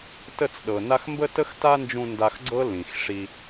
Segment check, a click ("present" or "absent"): present